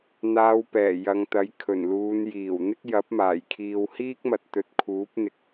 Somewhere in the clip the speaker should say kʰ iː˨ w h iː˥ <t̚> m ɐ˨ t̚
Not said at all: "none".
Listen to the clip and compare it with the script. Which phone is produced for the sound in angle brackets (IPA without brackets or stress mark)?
k̚